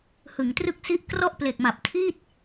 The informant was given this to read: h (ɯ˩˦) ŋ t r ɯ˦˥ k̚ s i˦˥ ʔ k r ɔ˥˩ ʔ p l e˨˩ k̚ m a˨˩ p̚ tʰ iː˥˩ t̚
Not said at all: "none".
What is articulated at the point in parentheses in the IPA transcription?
ɯ˩˦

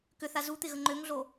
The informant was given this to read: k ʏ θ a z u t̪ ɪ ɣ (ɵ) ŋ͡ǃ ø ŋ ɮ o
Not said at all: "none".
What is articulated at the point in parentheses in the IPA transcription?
ə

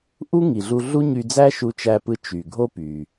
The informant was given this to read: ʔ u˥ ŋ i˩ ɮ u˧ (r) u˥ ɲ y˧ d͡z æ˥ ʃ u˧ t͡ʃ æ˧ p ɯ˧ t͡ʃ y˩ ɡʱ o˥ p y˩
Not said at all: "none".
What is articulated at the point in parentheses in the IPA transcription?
ɮ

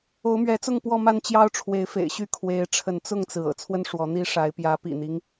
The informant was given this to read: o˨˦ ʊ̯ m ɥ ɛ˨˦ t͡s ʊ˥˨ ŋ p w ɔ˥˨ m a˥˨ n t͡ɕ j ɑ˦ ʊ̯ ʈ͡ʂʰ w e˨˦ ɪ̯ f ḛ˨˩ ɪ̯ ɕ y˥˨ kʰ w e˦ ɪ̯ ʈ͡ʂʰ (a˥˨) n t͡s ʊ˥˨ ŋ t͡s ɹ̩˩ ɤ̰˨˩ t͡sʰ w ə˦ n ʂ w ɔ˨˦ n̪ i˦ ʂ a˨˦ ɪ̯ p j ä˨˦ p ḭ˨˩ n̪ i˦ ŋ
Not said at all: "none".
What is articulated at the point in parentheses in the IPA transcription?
ə˥˨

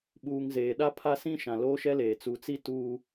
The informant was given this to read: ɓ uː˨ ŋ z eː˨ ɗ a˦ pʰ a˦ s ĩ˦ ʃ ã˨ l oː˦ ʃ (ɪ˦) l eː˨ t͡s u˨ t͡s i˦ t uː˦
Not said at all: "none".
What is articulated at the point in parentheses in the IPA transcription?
ɛ˦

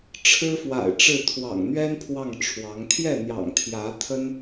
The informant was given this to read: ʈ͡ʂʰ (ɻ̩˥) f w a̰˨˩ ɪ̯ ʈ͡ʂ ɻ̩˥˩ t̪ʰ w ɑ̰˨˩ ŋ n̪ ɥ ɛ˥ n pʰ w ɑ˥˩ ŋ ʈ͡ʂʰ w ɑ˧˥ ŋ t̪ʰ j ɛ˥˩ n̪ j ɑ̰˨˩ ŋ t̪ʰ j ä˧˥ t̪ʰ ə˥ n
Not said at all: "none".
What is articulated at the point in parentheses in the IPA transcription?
ɻ̩˥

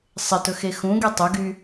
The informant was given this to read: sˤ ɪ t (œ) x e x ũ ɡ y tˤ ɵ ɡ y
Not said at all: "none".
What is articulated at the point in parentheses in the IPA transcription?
ɵ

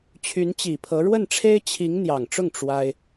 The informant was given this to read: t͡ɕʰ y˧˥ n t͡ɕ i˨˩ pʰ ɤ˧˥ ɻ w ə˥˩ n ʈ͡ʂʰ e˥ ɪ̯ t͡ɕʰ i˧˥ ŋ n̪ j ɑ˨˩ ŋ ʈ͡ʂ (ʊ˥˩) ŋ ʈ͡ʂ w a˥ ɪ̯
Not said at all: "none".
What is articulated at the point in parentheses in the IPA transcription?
ʊ˥˩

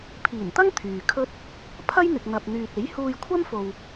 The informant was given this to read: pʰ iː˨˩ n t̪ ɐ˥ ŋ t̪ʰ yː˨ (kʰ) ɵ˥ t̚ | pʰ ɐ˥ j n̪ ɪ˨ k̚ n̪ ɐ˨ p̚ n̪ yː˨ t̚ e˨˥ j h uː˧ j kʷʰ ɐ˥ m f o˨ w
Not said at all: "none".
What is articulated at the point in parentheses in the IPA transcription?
kʰ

